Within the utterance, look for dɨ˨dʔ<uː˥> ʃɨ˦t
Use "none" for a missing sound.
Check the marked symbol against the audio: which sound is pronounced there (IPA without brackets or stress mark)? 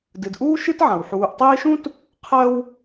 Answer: uː˥